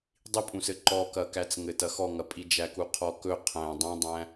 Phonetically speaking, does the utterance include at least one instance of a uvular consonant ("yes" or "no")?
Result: yes